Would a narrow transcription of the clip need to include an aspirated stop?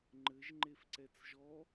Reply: no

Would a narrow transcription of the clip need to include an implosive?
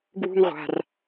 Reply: no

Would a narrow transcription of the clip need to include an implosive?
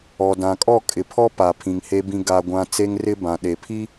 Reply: yes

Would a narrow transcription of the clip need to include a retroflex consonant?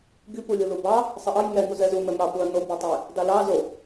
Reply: no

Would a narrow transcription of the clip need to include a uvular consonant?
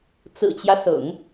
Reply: no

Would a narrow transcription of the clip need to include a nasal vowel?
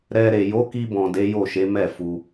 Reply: yes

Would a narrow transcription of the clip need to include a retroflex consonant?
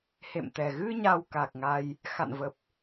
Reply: no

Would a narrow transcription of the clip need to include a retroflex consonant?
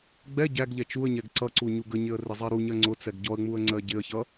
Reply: no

